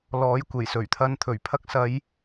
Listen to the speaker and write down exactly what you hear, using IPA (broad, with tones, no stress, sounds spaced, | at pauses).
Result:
l ɔː˨˥ j kʷ e˨˩ j s ɵ˨˩ ɥ t̪ʰ ɐ˧ n t̪ʰ ɵ˨˩ ɥ pʰ ɐ˧ k̚ s ɐ˨˧ j